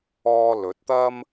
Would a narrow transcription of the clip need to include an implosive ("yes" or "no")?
no